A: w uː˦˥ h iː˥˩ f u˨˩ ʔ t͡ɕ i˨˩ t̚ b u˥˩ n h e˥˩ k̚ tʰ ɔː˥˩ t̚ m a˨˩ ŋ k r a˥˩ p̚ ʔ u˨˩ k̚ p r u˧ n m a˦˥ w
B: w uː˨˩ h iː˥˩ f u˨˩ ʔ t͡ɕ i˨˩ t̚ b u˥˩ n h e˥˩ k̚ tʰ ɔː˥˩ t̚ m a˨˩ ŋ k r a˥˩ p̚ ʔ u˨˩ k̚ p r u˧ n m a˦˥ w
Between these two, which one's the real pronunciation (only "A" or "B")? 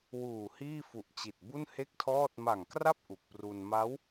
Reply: B